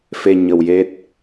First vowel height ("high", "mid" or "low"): mid